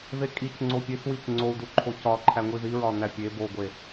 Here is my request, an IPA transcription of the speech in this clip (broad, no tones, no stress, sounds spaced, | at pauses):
ð e kʼ i c ŋ͡ǀ o pʲ e s w i c ŋ͡ǀ o u̯ d u ǃʰ o c ɒ ǃʰ æ ŋʷ i ð i ɹ ɒ n æ pʲ e b o ɡʷ e